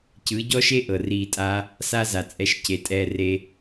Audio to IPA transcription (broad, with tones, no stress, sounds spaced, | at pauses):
c ɯ˨˦ ɟ ɔ˦ ʃ e˦ ʔ ɤ˨ r iː˧ tʼ a˦ | s a˦ z a˨ t͡sʼ ɛ˧ ʃ c e˨ tʼ ɛː˧ r e˧